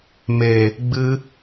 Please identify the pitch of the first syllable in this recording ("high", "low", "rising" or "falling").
low